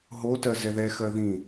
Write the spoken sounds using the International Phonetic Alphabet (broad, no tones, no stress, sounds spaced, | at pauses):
ɦ o t ɜ z ɛ ð ɛ x ɜ ð ĩ